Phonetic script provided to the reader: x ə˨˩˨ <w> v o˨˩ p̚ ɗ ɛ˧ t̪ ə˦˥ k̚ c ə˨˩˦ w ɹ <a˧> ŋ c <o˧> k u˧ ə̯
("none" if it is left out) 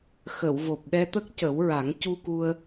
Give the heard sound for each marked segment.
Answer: w, a˨˩˦, u˧

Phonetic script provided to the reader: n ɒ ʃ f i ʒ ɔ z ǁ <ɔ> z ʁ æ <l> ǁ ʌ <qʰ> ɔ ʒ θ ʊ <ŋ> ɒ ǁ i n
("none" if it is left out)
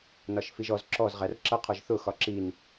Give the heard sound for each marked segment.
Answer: ɔ, r, qʰ, x

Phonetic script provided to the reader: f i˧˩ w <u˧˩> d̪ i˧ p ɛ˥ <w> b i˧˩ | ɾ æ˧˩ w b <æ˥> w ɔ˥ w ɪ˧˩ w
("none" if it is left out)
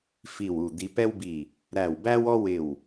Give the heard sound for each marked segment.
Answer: u˧˩, w, æ˥

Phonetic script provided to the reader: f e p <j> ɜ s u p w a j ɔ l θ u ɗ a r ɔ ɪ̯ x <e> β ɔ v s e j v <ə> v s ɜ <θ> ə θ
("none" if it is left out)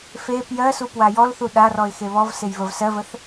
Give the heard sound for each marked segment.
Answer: j, e, ə, v

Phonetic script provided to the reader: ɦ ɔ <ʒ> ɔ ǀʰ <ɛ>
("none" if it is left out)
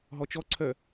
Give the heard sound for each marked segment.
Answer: t͡ʃ, œ

